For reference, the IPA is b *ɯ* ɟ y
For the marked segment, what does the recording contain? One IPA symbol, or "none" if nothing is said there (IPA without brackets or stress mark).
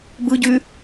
ɯ